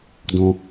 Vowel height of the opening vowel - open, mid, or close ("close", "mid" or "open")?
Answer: mid